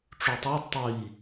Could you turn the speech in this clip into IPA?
ʈ͡ʂ u tˤ u d tˤ i

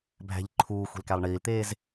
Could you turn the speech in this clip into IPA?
bʱ æ̤ ʎ ǃʰ uː xʷ e̤ l k æ lˠ ɳ iː l t̪ eː z

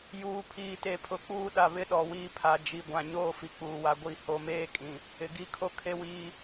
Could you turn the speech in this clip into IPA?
j uː˨ pʰ iː˨ t e˨ pʰ ʊ˨˦ k͡p uː˦ ɗ a˨ β ɪ˦ ɗ ɔ˨ w iː˦ pʰ a˨ d͡ʒ i˨ ɡʷ ã˨ ɲ oː˦ f i˨ k͡p uː˨ w a˨ ɡʷ i˦˨ h o˨ m eː˦ kʼ ĩ˨ | ɪ˨ ɡ i˦ kʰ o˦ kʰ e˦ w iː˦

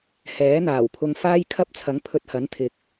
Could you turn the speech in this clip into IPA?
h ɛː˨˥ n̪ aː˨˩ w pʰ ʊ˧ ŋ f aː˥ j kʰ ɐ˥ p̚ t͡sʰ ɐ˨˥ ŋ pʰ ɵ˧ t̚ h ɐ˨˥ n t̪ʰ ɪ˨˥ k̚

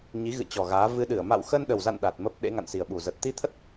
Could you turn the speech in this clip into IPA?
ɲ i˨˦ ɣ ɨ̰˧˨ t͡ɕ ɔ˨˩ ɣ aː˨˦ v ɨ˧ ɗ ɨ˧˩ ə̯ m a̰˧˨ w x ə˧ n ɗ ə˨˩ w z a̰˧˨ n ɗ a˨˩ t̚ m ə˦˥ p̚ ɗ ḛ˧˥ ŋ a̰˧˨ n s i˨˩ ə̯ ɓ u˨˩ z ə˨˩ t̚ t̪ i˧ t̪ʰ ə˦˥ t̚

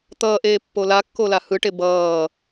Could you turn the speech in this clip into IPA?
t̪ ʌː ʔ eː pː o l a kː o l a h ɯ ʈ e b ʌː

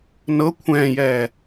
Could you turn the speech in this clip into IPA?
n ɤ kʷʰ ɛ̃ː j ɛː

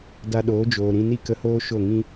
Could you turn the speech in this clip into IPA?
d a˧ ɗ oː˨˦ d͡ʒ oː˨ ɾ ĩ˧ n i˦ k ə˧ h oː˦ ʃ o˦˨ ŋ ĩ˦

